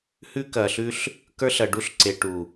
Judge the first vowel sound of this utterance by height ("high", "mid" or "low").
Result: high